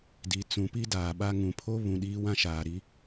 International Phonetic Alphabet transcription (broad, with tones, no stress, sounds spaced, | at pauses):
d i˨ t͡s ũ˨ p i˦ d aː˨ ɓ a˦ ŋ ũ˨ pʰ o˦ β ũ˨ ɗ iː˦ w ã˦ ʃ aː˨ ɾ i˦